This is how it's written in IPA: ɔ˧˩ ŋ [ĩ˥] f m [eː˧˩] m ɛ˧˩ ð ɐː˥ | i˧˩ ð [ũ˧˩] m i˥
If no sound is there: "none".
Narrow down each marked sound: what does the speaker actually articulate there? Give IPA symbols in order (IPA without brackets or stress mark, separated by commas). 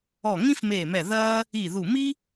ĩ˥, eː˧˩, u˧˩